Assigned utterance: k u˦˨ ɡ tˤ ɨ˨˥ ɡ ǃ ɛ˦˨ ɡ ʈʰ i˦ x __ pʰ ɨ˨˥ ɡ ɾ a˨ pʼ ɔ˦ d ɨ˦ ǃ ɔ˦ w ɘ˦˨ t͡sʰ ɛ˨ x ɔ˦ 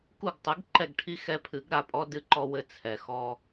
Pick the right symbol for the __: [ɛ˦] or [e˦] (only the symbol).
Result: ɛ˦